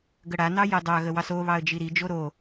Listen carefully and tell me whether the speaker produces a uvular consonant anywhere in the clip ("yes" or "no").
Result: no